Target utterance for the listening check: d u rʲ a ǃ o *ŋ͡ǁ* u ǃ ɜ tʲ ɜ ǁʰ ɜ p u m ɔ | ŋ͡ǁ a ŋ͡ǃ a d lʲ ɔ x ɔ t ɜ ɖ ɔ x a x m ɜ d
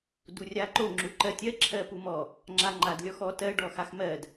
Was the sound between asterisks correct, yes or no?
yes